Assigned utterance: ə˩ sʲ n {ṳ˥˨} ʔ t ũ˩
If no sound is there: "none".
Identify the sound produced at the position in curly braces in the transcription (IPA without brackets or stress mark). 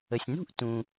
ṳ˥˨